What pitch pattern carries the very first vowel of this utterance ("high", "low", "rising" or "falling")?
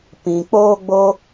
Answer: low